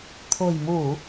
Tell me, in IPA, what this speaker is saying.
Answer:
t̪ʰ o̤˨˩ j m u˧˩˨

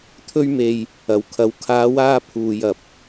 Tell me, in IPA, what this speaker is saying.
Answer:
t̪ʰ ɵ˥ ɥ m e˧ j | ɐ˨ w kʰ ɐ˨˥ w kʰ aː˨˧ w aː˧ pʰ uː˨ j ɐ˨ p̚

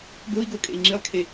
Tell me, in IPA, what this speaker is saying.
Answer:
ɡ o i̯ ɡ o kʼ ḛ i̯ ŋ͡ǁ i lˠ kʰ e

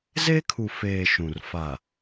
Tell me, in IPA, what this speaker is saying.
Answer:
z e˦ kʰ u˨ f eː˨ ʃ ũ˨ r f a˨

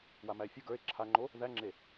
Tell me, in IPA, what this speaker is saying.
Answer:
w a m æ e̯ fʲ o ɡ ə˞ e̯ ǁʰ a ŋ͡ǃ o | ð æ ŋ͡ǁ e

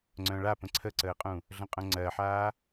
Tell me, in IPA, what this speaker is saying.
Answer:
ŋ͡ǀ œ̃ ɭ a p ə̃ ǀʰ ə ǀ əː qʼ ũ | ɮ ə̃ qʼ œ̃ ŋ͡ǀ ɜ ħ aː

